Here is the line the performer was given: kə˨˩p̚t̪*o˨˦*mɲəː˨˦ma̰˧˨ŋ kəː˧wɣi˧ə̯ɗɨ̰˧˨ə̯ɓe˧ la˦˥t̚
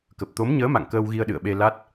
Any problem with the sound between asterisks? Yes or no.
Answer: no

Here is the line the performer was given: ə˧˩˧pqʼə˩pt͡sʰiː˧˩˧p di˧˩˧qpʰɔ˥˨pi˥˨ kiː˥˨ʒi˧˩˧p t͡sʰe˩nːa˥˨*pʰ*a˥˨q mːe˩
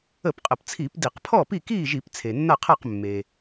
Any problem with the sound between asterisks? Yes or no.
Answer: yes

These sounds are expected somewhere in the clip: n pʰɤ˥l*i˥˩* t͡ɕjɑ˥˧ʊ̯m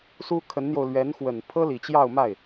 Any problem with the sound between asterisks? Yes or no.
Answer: yes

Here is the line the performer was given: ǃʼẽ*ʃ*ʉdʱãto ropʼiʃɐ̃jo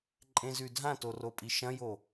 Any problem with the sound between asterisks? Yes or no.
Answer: yes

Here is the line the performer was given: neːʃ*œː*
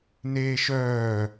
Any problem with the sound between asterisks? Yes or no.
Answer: no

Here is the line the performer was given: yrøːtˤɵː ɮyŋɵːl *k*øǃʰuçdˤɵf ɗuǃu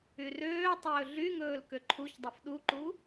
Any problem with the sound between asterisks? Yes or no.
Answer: no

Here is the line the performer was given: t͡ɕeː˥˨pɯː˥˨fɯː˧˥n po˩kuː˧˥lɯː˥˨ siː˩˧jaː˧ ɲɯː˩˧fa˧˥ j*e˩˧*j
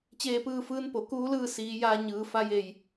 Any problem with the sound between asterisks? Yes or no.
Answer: yes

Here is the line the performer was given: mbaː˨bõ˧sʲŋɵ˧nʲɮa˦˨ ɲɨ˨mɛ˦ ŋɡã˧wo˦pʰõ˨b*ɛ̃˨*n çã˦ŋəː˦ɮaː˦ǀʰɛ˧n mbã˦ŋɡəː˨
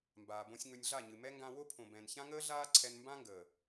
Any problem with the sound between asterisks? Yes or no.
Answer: no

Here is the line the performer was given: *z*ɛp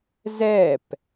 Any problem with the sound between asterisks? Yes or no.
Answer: no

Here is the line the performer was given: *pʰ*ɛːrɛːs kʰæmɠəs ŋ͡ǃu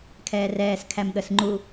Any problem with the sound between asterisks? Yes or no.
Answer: yes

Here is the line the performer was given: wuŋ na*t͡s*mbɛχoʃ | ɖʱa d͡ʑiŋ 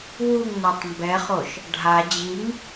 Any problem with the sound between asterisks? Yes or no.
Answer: yes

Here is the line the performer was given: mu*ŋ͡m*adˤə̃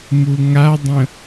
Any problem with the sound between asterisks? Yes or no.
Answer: yes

